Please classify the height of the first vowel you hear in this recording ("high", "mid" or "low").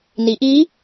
high